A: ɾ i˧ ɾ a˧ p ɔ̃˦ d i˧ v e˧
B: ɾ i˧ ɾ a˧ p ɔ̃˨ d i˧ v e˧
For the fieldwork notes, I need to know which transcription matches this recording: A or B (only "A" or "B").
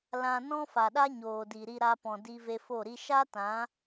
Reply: B